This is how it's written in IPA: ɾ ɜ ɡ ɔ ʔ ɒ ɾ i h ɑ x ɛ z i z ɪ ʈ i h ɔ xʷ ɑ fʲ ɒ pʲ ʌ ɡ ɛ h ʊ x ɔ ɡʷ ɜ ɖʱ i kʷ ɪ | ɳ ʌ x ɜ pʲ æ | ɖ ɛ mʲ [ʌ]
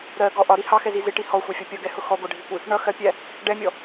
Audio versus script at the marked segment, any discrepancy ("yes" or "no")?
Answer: yes